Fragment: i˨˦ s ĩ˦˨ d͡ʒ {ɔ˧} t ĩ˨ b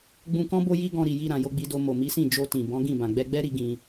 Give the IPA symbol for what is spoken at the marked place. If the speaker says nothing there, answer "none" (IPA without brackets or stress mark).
o˧